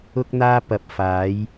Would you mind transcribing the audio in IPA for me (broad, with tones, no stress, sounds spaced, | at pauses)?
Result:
ʊ˧ k̚ n̪ aː˧ p ɐ˨˥ p̚ f aː˨˥ j